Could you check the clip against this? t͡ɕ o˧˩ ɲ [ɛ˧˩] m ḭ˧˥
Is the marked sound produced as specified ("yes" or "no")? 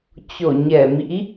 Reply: yes